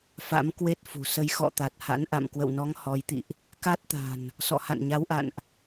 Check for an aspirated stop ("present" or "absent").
absent